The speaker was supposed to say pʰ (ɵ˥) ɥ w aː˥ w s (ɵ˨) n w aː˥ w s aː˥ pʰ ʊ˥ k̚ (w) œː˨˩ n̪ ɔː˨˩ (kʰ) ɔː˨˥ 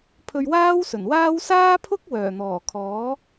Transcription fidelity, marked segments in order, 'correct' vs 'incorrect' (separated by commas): incorrect, incorrect, correct, correct